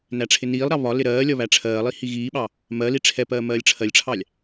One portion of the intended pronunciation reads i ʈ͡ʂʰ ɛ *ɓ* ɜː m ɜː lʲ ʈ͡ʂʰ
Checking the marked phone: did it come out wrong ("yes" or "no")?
yes